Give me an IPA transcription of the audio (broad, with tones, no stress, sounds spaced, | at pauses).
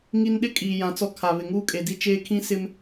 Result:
ŋ i˨ n ɗ ɪ˦ kʼ iː˨ j ã˨ t͡s ɔ˦ kʰ a˨ β ɪ˨ ŋ uː˦ kʼ e˨ d i˦ t͡ʃ eː˦ kʰ ĩ˦ s ɪ˦ m